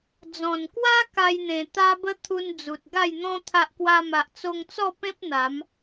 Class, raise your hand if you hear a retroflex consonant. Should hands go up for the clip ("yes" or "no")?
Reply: no